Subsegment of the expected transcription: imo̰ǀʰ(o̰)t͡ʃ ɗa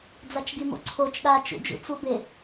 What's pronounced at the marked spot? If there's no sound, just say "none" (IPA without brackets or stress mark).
o